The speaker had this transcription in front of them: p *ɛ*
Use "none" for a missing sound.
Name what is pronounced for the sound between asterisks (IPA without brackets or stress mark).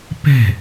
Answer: ɛ̤